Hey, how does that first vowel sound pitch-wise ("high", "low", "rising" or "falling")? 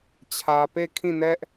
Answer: low